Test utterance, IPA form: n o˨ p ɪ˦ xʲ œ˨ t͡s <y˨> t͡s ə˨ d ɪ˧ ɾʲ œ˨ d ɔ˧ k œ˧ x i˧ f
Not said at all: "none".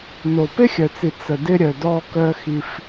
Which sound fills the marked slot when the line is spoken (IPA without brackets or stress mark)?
i˨